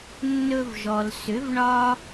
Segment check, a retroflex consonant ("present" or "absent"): present